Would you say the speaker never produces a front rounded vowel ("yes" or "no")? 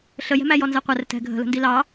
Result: yes